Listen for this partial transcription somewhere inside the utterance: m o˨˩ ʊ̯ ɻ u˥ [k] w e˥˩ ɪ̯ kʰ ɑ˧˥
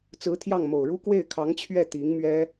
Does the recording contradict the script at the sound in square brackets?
no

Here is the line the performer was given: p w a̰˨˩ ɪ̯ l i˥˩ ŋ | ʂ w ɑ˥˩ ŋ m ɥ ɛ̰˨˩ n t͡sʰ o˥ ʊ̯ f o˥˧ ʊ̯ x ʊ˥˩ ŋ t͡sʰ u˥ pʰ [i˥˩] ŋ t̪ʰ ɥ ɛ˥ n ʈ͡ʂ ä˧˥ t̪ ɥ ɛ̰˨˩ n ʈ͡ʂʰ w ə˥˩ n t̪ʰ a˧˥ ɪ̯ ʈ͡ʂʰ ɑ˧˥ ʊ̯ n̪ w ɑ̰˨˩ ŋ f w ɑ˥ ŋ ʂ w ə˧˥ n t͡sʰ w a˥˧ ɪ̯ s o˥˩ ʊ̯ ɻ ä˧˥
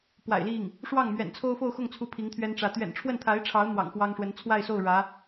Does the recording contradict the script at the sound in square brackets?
yes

